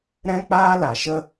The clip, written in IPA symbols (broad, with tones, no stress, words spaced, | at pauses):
ɾɛ̃˦k͡paː˦ la˨ʃə˦